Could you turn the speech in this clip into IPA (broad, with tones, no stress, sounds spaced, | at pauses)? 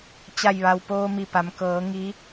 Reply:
t͡ɕ a˧˩ j ʋ a˩ w p oː˧ m i˧˩ p a˩˧ m k ɤː˩˧ ŋ i˧˥